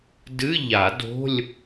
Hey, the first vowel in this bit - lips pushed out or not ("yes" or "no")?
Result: no